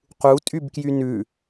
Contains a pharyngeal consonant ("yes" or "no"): no